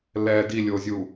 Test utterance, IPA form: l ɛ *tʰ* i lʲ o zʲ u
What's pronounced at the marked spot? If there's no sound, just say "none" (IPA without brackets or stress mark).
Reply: d